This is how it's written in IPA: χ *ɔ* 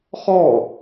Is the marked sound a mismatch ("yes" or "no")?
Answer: no